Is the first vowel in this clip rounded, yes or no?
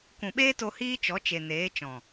yes